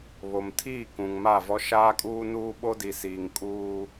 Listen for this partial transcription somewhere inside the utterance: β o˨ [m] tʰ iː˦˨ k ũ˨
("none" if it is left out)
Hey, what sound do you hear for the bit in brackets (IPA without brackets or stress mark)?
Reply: m